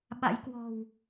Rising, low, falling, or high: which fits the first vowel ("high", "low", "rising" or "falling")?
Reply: rising